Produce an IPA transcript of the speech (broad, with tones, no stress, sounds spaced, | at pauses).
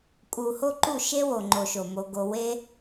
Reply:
kʼ u˨ h o˦ ǃ u˦˨ ʃ e˦ w o˨ ŋ͡ǃ o˨ ʃ o˨ m o˧ ɡ o˧ w e˦